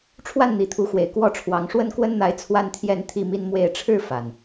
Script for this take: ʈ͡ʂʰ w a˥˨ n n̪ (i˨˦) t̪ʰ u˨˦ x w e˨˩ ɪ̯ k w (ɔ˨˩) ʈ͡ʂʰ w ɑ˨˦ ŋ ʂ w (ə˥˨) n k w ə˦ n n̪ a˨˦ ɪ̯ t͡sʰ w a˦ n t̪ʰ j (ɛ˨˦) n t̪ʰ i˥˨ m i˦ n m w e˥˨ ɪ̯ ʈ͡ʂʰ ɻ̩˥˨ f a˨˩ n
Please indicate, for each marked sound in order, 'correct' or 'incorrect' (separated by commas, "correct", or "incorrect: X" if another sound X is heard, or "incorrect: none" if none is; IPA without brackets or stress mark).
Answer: correct, incorrect: ɔ˥˨, incorrect: ə˦, incorrect: ɛ˥˨